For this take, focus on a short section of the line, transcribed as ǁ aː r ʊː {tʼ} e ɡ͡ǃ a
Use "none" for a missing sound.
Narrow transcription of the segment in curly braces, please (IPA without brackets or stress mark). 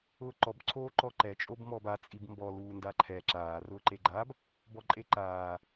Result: ǃ